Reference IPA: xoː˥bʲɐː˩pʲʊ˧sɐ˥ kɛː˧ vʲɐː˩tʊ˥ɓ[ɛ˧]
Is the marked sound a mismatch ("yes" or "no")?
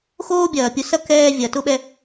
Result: no